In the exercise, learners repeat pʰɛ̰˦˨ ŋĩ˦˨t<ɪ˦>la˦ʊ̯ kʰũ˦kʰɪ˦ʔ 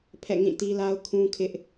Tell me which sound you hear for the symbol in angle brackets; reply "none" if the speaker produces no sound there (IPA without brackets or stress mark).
i˦